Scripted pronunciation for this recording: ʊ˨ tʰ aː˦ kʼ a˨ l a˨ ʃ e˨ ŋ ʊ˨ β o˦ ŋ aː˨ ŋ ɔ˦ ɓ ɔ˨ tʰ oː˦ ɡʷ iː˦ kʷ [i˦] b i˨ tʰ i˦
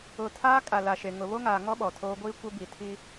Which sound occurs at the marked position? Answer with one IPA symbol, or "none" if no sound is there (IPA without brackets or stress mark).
ɪ˦